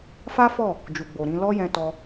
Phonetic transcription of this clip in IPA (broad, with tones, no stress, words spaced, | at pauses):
fa˦fɔ˦˨ | d͡ʒu˨ɡ͡bo˨ɾĩ˨˦ lɔ˦jɛ̃˧tɔ˧